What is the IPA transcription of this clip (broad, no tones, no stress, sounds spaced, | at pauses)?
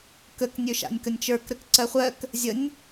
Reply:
k ə k nʲ ø ʃ a̰ nʲ k ə nʲ t͡ʃ ə˞ k ɾ ə k ǀ ɜ χʷ ɜ k | zʲ ə nʲ